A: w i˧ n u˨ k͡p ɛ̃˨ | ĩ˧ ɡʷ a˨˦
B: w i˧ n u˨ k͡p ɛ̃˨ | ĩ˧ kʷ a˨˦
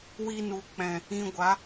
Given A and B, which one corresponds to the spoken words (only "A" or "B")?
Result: A